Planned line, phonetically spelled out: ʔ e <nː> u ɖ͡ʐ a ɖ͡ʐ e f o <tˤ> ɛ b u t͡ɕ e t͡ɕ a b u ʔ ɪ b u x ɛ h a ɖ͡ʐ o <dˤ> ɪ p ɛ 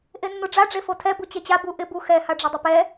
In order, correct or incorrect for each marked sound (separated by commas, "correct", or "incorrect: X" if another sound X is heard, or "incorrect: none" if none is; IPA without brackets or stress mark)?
correct, incorrect: tʰ, correct